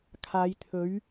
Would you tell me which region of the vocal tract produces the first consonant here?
velum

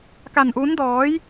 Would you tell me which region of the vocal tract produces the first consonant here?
velum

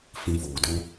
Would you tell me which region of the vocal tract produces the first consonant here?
lips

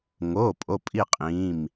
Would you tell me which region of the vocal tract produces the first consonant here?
velum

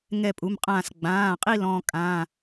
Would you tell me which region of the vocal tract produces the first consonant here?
velum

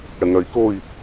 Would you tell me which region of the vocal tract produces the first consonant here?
retroflex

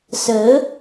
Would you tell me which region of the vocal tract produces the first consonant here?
tongue tip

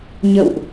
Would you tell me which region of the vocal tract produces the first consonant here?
palate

